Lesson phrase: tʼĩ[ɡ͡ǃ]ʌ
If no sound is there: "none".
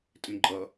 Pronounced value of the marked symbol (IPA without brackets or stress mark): ɡ͡ǃ